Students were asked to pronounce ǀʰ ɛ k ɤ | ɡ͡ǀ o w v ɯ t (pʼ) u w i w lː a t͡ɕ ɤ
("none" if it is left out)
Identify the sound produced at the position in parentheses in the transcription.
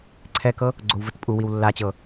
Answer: pʼ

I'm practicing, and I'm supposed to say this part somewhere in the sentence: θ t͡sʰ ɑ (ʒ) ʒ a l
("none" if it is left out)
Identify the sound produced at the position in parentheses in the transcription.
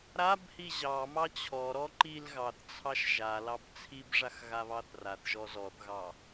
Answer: ʃ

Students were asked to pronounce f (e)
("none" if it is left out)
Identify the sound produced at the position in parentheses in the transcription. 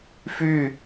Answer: y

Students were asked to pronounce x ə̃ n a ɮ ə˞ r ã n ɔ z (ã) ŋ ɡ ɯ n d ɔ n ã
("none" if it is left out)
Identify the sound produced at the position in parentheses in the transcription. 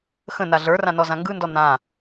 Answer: ã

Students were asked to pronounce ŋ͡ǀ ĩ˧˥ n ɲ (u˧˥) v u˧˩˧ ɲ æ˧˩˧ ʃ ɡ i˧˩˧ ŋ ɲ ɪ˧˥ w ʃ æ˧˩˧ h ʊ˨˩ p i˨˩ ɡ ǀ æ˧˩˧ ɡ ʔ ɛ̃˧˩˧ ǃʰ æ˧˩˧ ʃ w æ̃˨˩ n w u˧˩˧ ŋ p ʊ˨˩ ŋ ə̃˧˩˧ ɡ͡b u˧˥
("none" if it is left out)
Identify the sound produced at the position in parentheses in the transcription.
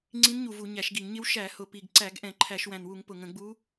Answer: u˨˩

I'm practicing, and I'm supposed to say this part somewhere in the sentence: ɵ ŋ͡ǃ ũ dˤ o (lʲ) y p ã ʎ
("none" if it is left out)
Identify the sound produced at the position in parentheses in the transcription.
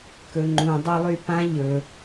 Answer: lˠ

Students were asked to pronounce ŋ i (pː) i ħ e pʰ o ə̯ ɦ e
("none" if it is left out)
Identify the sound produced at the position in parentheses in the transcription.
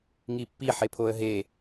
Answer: pː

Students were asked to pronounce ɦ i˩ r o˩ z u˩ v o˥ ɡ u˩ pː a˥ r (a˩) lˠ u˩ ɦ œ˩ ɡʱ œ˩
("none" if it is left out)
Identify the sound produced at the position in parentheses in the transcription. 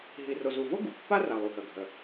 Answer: a˩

